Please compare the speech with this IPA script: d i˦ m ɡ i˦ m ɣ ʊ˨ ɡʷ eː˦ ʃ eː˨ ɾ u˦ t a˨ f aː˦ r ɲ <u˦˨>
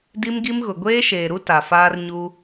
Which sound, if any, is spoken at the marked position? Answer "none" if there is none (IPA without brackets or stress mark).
u˦